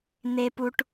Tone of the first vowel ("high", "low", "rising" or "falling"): high